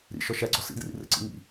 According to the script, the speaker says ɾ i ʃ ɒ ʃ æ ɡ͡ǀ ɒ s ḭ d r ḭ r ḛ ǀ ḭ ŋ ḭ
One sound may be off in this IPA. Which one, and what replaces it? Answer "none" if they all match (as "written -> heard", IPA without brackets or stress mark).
i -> ḭ